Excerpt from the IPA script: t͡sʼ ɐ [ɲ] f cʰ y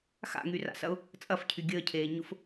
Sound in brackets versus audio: incorrect: none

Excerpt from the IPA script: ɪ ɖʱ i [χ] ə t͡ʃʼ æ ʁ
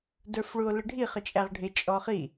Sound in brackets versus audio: correct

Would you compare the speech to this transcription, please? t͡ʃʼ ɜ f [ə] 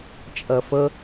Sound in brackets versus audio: correct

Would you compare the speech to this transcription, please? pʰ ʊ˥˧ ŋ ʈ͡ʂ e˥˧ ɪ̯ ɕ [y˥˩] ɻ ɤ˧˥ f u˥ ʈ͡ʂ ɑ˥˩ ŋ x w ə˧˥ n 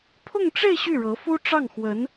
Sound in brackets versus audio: correct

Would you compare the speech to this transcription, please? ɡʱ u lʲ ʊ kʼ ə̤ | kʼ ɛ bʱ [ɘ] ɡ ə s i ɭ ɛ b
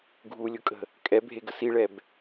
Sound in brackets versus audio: incorrect: e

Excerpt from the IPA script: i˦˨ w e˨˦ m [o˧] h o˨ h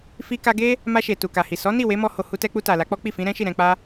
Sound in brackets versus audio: incorrect: ɔ˧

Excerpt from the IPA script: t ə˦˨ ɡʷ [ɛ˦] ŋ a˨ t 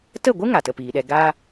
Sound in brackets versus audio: incorrect: ɨ˦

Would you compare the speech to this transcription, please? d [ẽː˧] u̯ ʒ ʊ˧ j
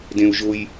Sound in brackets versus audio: incorrect: ẽ˧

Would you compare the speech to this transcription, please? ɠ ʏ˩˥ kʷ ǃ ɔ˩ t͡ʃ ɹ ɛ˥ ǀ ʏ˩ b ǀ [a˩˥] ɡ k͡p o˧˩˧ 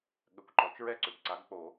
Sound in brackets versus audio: correct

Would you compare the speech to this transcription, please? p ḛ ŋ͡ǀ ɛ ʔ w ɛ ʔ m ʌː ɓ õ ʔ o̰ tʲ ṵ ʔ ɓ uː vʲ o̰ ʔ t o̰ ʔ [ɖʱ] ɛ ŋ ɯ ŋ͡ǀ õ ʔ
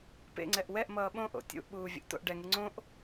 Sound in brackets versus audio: incorrect: ɖ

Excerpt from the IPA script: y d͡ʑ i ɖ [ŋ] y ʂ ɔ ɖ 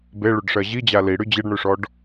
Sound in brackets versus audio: incorrect: ɳ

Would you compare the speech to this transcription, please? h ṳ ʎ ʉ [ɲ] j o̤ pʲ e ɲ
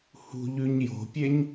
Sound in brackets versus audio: correct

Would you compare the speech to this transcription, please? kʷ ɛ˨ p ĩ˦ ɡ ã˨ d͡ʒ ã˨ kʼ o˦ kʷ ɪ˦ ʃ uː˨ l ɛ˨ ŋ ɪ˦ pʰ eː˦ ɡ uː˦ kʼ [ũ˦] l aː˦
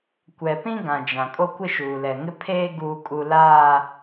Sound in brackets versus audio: incorrect: u˦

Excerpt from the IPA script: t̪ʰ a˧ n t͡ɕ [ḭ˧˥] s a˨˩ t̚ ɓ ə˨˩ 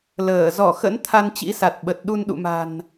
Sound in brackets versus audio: correct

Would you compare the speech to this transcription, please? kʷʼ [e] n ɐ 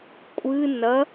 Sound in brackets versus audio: incorrect: ɨ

